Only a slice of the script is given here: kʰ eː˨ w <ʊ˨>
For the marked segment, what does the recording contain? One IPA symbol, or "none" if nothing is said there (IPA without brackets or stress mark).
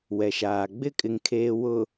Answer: ʊ˨